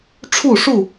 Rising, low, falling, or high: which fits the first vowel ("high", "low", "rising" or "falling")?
falling